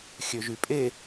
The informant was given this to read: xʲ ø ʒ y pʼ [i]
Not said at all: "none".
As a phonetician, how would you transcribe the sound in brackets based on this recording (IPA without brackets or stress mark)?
e